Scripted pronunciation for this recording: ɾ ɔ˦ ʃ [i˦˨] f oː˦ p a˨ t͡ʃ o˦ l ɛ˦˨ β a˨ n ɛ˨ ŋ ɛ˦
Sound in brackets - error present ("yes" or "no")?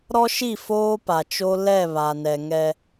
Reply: no